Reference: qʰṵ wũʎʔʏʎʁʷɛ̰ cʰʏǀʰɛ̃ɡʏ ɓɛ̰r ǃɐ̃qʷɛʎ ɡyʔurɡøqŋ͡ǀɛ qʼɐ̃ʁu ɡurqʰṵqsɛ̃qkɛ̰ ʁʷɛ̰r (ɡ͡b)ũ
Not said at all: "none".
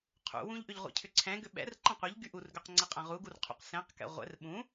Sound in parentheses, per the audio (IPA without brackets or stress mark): ɓ